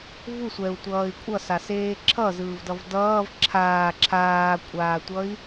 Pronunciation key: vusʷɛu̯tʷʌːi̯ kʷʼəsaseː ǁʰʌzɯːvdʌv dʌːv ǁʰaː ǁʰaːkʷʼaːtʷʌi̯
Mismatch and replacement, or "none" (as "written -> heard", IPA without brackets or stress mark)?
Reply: ə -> ʌ